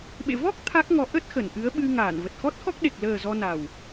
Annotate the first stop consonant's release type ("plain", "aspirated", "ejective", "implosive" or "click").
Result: implosive